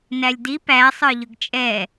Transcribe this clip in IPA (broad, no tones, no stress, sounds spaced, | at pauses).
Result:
n æ lʲ d i p æ sˤ ə˞ ʎ ʊ ɡ t͡ʃʼ ɛ